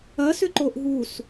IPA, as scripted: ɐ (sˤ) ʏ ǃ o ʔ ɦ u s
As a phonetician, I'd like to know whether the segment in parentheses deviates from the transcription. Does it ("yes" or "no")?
yes